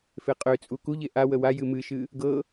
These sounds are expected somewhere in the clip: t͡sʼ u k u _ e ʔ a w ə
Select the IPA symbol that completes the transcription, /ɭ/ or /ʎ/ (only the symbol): ʎ